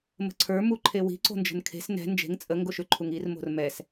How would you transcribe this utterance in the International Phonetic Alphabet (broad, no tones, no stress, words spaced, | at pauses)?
mə̤ǀʰə˞ muǃʰewi̤ ǀo̤nd͡ʒə̤nkʰe̤s nɛ̤ nd͡ʒe̤ŋ t͡sʼə ŋɡoʃʏ ǃʰuŋir mo̤rmɛs